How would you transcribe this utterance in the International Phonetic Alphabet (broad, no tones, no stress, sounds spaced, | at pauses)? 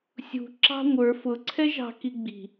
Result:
sʲ ṳ ǁ ɑ̤ ŋʷ ə˞ f ʊ ǀʰ ɛ ʒ ɑ̤ k i ɡ͡b i̤